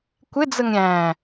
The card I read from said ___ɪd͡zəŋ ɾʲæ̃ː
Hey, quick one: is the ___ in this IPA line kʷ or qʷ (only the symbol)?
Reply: kʷ